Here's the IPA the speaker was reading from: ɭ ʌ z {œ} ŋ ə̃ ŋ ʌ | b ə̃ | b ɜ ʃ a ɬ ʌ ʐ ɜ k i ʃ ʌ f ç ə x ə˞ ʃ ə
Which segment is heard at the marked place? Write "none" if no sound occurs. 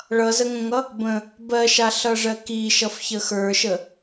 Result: ə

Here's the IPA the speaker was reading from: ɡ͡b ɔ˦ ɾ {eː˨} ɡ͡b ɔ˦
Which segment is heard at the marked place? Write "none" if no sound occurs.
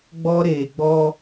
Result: eː˨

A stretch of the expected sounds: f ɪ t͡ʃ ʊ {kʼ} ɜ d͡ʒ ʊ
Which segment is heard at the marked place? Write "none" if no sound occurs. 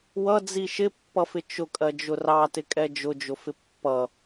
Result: kʼ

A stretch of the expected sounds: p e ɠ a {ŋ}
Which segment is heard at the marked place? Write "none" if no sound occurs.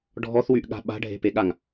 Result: ŋ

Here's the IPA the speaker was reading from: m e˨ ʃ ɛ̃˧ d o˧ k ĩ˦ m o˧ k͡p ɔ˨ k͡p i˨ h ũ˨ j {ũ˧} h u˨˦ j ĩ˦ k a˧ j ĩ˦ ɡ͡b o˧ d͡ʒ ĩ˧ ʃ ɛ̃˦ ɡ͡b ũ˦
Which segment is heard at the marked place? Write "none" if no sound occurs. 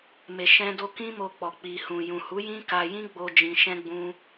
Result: ũ˨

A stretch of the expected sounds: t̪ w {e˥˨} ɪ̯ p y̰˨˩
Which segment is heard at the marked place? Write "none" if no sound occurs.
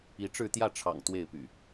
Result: e˥˨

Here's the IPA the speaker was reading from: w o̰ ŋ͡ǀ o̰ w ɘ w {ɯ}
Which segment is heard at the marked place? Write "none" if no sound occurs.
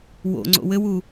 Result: u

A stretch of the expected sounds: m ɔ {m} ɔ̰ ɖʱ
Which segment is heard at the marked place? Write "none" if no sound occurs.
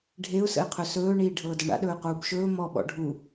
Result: ɓ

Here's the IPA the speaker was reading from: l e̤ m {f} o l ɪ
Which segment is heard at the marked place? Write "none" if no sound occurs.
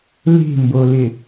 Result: b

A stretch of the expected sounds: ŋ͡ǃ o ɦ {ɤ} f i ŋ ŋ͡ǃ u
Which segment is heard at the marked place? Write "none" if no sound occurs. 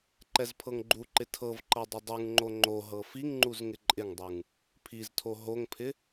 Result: ɤ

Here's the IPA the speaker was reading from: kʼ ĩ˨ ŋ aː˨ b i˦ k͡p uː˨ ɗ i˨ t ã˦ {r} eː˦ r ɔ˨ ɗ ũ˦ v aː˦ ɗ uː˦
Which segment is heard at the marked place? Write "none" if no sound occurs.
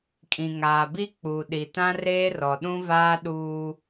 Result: r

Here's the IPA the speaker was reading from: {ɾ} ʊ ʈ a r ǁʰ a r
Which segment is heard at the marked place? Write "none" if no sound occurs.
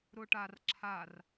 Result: ɾ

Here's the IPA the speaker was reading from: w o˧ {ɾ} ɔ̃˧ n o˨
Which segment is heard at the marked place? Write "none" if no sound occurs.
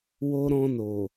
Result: ɾ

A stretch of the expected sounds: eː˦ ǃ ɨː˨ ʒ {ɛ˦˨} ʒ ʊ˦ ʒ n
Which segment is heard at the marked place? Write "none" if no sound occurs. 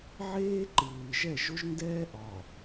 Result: ɛ˦˨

